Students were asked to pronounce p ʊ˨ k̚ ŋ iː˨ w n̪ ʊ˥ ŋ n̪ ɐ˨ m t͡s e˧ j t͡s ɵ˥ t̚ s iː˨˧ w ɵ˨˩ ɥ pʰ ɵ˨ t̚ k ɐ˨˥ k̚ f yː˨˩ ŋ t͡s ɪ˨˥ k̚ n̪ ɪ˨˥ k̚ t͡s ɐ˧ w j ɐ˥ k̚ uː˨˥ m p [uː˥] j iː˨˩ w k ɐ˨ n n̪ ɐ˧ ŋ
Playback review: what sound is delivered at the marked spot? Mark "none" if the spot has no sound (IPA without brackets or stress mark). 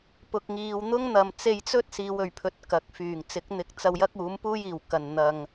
uː˥